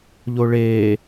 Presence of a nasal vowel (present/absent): absent